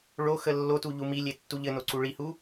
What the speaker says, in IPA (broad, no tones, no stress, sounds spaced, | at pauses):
ɭ o x ə lː o t u ʎ u m i lʲ e tː u ʎ ɘ n o ǀ u ɭ i h u